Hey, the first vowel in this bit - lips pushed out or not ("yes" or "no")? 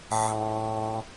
no